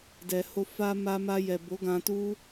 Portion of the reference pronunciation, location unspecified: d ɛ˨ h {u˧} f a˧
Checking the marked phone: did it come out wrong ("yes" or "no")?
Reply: yes